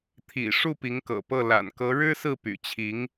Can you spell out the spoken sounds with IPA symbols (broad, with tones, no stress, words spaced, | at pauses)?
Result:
t̪ʰḭ˨˩ ʂu˥˩pi˧˥ŋkɤ̰˨˩pɤ˥˩ la̰˨˩nkɤ˧˥ ɻɻ̩˥sɹ̩˥˩ py̰˨˩t͡ɕʰi˧˥ŋ